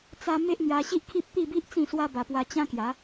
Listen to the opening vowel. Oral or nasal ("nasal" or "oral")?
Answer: oral